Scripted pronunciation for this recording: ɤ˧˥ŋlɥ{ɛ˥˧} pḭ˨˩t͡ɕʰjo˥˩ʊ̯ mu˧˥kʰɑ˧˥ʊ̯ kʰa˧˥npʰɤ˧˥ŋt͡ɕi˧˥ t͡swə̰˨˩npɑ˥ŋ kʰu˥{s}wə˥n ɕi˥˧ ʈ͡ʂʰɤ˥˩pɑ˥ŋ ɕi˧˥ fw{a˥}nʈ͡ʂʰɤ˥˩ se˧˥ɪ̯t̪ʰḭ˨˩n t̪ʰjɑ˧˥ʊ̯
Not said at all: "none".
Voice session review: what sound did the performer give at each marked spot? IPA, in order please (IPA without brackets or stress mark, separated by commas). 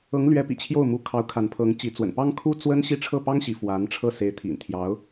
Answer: ɛ˧˥, t͡s, a˧˥